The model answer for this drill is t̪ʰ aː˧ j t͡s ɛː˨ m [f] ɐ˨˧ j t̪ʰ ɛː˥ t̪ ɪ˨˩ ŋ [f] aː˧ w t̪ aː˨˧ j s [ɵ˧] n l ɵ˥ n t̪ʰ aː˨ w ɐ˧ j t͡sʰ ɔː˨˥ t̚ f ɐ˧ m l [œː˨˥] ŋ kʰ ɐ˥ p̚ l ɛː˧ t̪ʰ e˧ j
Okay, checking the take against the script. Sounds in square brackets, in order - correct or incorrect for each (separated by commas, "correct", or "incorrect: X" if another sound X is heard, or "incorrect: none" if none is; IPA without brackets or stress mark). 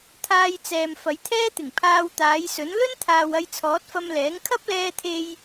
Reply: correct, incorrect: pʰ, incorrect: ɵ˨˥, incorrect: ɛː˨˥